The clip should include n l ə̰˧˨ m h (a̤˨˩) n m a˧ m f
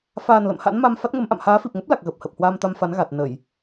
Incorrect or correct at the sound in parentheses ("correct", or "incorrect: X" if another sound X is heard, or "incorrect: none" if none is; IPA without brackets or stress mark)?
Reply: incorrect: a̰˧˥